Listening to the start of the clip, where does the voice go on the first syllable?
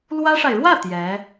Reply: high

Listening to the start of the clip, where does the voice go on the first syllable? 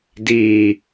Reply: low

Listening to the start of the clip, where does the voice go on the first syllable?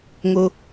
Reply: high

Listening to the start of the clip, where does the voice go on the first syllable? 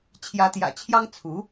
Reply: rising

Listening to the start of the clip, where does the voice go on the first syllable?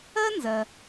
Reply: high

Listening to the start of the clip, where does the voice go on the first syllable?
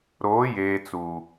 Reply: rising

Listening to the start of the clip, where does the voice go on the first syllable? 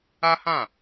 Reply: high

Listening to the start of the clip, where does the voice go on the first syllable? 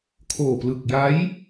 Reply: low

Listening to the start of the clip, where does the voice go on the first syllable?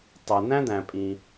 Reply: low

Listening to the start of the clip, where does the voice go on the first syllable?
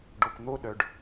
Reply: low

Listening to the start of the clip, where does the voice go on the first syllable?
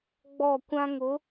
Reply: falling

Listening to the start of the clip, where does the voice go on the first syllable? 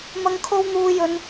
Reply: high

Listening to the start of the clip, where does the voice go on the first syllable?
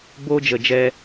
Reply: high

